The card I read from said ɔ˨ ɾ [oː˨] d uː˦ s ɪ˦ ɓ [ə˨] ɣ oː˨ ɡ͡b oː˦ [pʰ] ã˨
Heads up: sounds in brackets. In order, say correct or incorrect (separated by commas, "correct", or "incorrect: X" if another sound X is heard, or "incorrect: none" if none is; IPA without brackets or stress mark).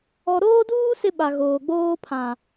incorrect: oː˦, incorrect: a˨, correct